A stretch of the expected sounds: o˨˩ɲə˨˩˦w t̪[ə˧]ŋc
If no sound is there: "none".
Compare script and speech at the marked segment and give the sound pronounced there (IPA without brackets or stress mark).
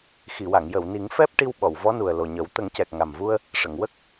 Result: ə˨˩˦